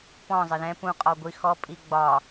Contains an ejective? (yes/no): yes